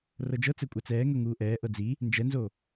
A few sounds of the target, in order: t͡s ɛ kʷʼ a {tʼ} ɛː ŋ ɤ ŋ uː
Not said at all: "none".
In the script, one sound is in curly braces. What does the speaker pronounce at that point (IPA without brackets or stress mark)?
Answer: t͡s